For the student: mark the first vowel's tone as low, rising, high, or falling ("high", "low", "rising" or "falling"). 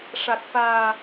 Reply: low